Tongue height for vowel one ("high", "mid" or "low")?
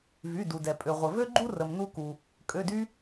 high